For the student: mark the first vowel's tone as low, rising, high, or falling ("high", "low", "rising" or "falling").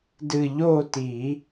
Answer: falling